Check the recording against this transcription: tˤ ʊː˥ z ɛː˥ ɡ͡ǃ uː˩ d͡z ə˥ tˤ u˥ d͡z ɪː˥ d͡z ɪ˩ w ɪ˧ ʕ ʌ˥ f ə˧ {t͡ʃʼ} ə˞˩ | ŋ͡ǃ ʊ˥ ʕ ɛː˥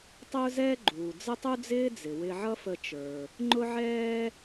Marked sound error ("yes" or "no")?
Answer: yes